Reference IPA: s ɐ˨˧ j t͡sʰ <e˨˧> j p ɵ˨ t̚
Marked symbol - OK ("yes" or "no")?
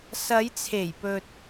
no